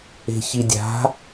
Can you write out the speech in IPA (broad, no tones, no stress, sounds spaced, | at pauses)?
e̤ ç i dʲ a̤